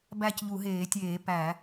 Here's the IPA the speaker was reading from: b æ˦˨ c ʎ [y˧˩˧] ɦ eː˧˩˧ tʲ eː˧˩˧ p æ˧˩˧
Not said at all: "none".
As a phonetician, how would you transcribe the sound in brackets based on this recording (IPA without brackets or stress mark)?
u˧˩˧